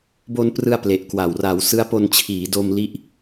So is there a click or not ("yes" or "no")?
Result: no